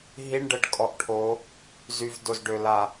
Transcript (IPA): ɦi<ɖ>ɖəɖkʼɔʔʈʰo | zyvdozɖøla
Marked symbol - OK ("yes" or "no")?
no